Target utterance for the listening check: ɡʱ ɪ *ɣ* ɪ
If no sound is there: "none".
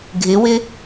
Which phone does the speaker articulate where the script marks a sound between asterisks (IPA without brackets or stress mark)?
w